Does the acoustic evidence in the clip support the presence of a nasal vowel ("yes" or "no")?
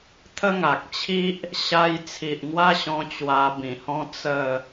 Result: yes